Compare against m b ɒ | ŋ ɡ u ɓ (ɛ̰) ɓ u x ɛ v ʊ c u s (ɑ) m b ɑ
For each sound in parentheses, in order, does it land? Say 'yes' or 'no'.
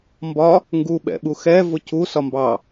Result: yes, no

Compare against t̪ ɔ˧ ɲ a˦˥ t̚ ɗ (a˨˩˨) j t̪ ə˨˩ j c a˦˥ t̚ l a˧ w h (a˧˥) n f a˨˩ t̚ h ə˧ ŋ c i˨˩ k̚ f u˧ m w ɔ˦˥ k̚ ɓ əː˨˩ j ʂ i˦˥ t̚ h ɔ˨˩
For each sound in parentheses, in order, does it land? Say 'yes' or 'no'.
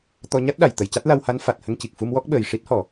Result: yes, yes

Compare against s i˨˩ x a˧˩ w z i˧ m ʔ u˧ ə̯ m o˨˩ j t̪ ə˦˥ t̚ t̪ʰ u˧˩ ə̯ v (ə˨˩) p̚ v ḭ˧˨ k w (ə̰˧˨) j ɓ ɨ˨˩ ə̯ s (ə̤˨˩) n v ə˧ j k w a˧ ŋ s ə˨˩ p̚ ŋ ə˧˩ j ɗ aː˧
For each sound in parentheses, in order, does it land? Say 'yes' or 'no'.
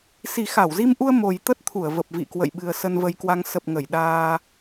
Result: yes, yes, no

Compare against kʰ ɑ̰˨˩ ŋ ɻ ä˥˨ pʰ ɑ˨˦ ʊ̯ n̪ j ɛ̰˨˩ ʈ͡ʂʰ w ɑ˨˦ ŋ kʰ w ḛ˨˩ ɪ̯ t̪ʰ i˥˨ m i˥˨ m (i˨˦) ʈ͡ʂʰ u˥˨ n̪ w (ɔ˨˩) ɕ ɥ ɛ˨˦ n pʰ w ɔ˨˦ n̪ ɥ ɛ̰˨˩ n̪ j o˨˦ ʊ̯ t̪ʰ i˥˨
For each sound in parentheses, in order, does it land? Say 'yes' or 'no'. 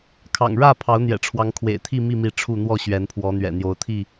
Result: yes, no

